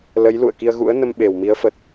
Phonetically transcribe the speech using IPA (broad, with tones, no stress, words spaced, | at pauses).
lə˨˦j lṵ˧˨ə̯ ki˧ə̯ɣṵ˧˥ə̯nə˧m ɓe˨˩wmi˨˦ə̯fə˨˩t̚